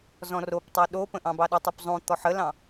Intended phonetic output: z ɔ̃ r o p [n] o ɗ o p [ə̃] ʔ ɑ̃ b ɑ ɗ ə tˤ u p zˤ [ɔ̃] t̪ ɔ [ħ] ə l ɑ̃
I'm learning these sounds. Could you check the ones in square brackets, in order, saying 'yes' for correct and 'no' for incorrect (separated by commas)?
no, yes, no, yes